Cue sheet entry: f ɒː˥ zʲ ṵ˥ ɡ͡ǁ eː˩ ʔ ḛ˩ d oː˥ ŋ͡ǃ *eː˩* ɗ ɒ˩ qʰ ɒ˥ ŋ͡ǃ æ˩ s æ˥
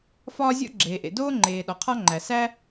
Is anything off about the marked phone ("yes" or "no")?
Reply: no